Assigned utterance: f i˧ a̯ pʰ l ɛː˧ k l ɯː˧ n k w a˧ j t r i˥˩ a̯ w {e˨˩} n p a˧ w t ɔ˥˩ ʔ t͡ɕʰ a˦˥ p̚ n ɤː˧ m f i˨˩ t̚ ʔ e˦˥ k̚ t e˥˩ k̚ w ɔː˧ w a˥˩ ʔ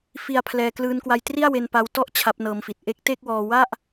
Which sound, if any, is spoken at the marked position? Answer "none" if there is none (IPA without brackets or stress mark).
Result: e˧